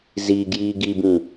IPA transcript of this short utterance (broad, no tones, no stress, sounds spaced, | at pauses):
z i ɡ j iː ɡ i b ĩ